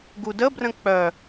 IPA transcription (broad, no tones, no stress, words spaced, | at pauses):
ɡudəbrə̃ k͡pœ